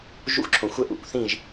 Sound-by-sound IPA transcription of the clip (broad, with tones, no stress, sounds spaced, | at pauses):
ʒ ṵ˦ xʷ ǁʰ õ˨ xʷ ə˦ ʔ ṵ˨˦ kʷ θ ĩ˦˨ ʒ